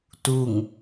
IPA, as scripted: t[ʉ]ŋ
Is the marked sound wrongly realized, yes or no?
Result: yes